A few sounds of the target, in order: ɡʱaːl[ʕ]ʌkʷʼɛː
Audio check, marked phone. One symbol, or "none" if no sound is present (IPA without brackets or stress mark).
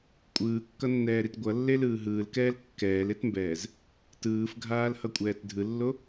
h